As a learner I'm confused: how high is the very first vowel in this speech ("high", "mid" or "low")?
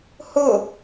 high